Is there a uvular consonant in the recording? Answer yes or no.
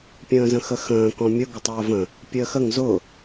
no